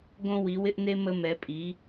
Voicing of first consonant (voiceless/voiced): voiced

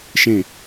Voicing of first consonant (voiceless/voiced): voiceless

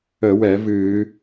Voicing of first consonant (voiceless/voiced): voiced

